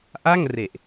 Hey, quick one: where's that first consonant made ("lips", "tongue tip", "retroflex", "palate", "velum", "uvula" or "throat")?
throat